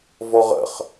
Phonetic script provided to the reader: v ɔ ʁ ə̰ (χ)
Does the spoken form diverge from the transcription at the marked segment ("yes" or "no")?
no